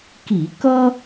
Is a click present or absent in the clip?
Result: absent